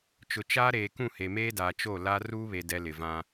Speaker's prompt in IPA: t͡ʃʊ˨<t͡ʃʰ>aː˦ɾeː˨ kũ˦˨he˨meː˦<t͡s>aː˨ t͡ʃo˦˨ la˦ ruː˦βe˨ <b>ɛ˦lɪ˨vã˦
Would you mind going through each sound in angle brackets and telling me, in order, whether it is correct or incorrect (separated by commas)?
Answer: incorrect, incorrect, incorrect